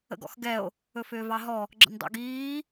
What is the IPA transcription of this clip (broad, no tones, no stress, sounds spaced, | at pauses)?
ə̰ ɡ ɔ̰ x ɡ ɛ o̯ | ɵ f ʏː v ɑ ɦ ɔ | ɡ͡ǁ ə̰ n dˤ ḛ ɡ iː